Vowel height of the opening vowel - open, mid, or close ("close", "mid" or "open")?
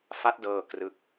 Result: open